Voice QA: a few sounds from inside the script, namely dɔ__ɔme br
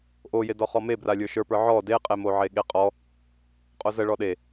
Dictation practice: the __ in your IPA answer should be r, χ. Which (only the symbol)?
χ